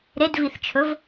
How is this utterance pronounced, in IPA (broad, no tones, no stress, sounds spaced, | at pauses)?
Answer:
ɾ e d v i θ t͡ʃʰ ɵ v